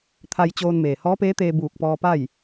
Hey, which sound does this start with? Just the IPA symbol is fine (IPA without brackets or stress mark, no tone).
t̪ʰ